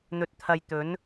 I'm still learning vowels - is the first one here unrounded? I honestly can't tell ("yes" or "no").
no